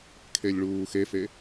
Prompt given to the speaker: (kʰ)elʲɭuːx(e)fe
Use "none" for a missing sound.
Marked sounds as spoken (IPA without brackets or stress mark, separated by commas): kʰ, e